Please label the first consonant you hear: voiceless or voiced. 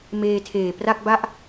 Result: voiced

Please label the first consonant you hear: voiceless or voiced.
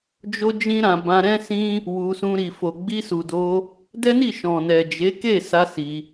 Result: voiced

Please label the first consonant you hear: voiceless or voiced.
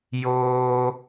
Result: voiced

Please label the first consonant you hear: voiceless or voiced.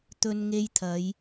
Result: voiceless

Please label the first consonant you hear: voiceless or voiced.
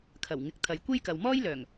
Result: voiceless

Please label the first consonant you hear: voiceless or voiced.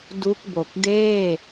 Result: voiced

